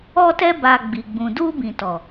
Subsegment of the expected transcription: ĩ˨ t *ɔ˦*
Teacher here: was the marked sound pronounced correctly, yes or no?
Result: no